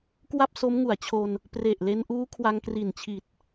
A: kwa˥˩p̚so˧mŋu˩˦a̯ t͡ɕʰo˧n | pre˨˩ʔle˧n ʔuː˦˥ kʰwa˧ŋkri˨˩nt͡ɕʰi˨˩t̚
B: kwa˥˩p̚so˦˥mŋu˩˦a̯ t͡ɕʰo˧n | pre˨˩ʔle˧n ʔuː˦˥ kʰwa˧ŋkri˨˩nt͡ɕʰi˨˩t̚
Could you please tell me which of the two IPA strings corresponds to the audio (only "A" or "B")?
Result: B